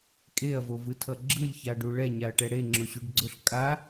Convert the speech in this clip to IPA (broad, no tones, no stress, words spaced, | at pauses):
kʼeɐ̯vovɯtʰʌ ɡ͡ǁɯlʲçaɖu ɭɛɲaɐ̯ʈɛ ɽeŋ͡ǁoɕuɖɡ͡ǀoɬ kʼa